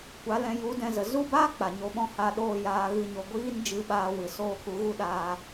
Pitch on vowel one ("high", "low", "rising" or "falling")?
rising